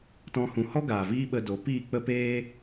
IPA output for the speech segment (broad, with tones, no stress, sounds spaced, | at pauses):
t ɔ̃˧ h ũ˨ h ɔ˦ ɡ aː˨ v iː˦ ɓ ə˧ d o˨˦ p iː˦˨ k͡p ə˦ p eː˦